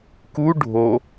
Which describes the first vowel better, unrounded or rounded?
rounded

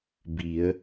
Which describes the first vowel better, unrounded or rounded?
unrounded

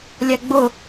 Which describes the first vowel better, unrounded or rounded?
unrounded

